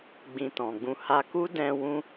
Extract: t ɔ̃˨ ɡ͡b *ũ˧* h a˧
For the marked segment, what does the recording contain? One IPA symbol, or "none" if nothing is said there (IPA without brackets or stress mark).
ũ˧